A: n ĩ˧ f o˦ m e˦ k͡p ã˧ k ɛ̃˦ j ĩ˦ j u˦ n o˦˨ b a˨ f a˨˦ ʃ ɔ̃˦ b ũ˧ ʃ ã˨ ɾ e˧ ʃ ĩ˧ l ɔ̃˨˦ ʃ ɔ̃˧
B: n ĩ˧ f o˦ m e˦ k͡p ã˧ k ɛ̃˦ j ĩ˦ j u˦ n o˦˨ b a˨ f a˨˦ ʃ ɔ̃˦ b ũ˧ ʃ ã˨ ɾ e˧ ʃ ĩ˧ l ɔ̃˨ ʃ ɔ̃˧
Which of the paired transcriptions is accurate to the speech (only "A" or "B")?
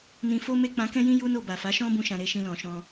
B